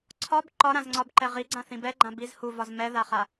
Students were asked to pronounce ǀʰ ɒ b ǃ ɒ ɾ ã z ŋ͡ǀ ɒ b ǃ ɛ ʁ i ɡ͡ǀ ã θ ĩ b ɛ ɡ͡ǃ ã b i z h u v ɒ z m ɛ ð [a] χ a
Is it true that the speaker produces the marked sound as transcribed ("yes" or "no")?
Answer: yes